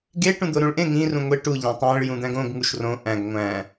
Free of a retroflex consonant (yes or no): no